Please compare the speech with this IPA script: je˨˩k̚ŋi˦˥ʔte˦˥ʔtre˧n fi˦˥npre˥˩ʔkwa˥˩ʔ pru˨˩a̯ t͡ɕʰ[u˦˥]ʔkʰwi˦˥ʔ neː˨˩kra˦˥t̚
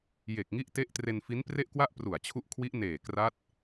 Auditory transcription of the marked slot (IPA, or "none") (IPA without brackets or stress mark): u˦˥